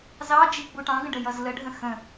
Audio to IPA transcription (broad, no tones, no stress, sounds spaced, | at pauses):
z ɑ d͡ʒ i ɡ͡b u ʈ ɑ̃ ɡ ə̃ ɖ ə j ʌ z l ə ɖʱ ə̃ x ə̃